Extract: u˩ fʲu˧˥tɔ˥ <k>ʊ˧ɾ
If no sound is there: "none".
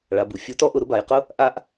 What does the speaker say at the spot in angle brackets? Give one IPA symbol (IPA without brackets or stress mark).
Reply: ʔ